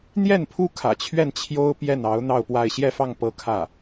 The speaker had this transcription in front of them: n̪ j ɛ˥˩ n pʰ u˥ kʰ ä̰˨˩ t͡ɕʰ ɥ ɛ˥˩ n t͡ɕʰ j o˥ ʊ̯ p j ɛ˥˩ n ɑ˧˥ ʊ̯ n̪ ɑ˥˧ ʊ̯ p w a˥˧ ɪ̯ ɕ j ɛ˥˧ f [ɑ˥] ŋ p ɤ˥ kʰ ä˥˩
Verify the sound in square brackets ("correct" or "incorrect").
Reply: incorrect